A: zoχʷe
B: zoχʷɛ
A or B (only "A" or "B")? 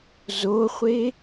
A